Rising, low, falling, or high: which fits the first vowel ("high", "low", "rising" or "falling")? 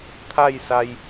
falling